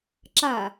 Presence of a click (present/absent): present